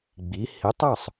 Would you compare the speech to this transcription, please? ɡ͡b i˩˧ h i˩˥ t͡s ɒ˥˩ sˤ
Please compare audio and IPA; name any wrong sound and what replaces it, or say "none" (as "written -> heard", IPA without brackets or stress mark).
t͡s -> tˤ